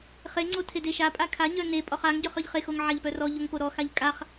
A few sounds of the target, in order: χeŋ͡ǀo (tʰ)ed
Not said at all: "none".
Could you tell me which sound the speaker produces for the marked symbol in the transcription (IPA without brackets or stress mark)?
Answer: tʰ